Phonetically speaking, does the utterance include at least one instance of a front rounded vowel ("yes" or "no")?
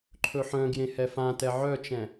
yes